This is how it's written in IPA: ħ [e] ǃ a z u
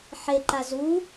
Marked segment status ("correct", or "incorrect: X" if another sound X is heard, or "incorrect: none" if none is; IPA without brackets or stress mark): correct